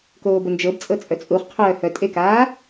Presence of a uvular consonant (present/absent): present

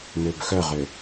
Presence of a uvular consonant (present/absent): present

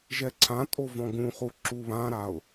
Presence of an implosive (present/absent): absent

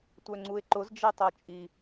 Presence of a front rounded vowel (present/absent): present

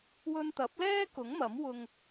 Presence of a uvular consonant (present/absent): absent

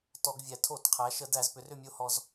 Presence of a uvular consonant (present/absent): present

